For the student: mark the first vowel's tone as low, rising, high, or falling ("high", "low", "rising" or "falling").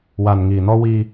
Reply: low